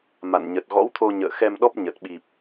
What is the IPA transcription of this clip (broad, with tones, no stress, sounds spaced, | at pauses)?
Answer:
m a̰˧˨ n ɲ ə˨˩ t̚ ɣ ɔ̰˧˥ w t̪ʰ o˧ ɲ ə̰ː˧˨ x ɛ˧ m ɗ ɔ˦˥ p̚ ɲ ə˨˩ t̚ ɓ i˨˩ p̚